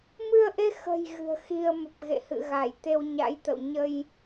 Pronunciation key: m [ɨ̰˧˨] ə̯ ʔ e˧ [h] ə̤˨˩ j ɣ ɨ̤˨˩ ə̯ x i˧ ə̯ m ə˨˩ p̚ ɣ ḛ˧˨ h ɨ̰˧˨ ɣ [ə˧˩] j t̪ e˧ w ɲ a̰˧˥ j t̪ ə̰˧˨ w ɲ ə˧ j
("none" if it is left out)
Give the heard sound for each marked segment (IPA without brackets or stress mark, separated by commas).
ɨ˧, x, a˧˩